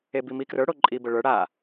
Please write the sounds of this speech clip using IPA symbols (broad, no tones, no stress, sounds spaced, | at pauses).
e b i m i k r ə˞ ɽ o ǃʼ i b ə ɭ ə˞ ɽ a